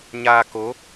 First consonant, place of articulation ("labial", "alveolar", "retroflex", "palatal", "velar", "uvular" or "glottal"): palatal